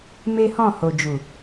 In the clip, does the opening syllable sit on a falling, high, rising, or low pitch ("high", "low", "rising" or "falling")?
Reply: high